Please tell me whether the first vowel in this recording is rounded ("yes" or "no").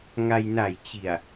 no